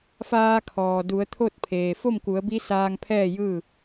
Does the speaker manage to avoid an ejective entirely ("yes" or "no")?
yes